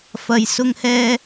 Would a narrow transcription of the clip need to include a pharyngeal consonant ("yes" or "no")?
no